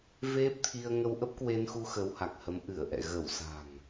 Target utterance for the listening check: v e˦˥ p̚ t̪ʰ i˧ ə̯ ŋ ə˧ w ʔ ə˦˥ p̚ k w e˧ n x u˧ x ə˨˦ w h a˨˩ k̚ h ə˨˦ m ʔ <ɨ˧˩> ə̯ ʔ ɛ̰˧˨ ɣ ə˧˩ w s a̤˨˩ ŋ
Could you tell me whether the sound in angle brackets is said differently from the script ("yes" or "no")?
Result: no